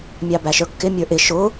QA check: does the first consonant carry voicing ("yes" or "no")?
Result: yes